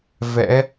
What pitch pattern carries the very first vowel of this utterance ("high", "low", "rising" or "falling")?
rising